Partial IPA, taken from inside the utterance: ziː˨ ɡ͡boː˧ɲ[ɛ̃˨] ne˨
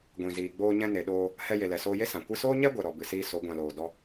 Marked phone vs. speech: incorrect: ɛ̃˧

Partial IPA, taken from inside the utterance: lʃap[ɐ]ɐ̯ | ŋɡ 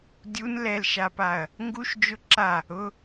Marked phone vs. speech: incorrect: a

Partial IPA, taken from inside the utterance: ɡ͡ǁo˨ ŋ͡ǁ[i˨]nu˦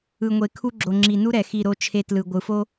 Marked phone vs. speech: correct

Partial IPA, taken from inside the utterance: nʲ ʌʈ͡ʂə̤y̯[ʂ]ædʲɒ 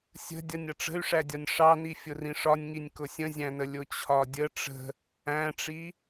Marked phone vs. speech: correct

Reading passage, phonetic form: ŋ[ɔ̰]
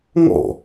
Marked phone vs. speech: correct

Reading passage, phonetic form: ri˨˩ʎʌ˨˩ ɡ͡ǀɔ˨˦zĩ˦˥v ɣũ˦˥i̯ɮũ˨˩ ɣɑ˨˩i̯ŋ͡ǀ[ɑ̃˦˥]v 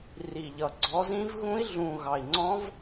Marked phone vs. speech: incorrect: ɔ̃˦˥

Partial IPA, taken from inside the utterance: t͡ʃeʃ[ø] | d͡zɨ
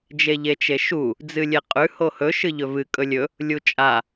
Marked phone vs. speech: incorrect: u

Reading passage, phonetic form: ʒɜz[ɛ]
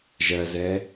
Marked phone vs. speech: correct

